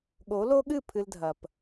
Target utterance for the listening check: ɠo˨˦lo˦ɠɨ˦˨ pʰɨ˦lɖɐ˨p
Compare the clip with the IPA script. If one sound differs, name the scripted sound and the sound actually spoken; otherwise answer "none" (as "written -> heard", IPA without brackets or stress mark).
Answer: ɖ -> dʱ